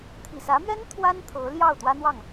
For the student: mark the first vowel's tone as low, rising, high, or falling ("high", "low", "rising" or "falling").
low